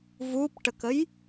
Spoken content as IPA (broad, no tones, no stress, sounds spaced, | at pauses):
v u p ʈ ə k ə j